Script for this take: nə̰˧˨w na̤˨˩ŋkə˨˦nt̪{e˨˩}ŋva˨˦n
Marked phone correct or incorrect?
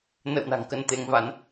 incorrect